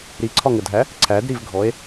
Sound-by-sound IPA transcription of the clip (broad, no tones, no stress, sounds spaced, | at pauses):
ɾ i ǀʰ ɒ ŋ ə dʱ æ | ǀʰ æ d ɾ i v ɡʱ ɔ e̯